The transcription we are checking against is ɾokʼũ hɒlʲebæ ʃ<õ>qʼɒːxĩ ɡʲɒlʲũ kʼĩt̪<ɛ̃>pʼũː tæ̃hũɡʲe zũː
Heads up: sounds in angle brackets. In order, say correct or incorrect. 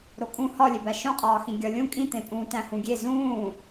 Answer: correct, incorrect

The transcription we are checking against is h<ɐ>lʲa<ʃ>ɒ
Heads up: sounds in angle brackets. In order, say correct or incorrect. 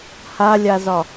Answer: incorrect, incorrect

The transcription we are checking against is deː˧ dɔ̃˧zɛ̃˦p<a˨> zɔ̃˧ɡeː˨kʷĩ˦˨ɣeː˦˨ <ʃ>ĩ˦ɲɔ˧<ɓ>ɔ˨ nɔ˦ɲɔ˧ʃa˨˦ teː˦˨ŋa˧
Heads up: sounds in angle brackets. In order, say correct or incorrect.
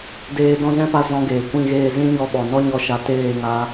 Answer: incorrect, incorrect, correct

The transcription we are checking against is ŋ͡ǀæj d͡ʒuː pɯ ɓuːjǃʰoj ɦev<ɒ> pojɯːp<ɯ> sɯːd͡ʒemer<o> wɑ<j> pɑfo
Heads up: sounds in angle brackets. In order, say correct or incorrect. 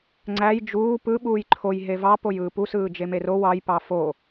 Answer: incorrect, incorrect, correct, correct

